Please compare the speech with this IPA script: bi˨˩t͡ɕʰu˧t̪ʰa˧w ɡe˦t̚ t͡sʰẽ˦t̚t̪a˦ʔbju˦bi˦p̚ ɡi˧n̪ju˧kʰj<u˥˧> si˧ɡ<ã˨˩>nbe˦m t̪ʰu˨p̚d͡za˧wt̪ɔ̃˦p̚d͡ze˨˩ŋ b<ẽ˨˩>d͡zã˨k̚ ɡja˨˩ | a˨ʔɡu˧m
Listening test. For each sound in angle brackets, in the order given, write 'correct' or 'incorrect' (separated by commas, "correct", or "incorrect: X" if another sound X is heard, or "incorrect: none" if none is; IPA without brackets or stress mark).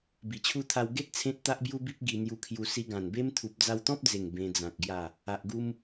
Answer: incorrect: u˧, correct, incorrect: ẽ˧